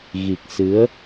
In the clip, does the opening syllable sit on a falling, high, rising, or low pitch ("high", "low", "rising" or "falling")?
low